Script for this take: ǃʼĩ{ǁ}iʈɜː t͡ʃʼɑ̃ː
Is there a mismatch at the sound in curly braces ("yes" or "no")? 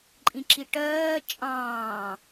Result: no